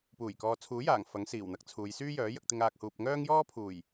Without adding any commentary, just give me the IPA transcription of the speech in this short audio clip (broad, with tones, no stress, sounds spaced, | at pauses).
p uː˨˩ j k ɔː˨ t͡sʰ uː˨˥ j aː˨˩ ŋ f ɐ˨˥ ŋ s iː˨˩ w n̪ ɐ˨˥ k̚ t͡sʰ uː˨˧ j s yː˥ j œː˨˥ j ɐ˧ k̚ t̪ ɪ˧ ŋ aː˨ k̚ h uː˨ p̚ ŋ œː˥ ŋ j ɔː˥ pʰ uː˨˩ j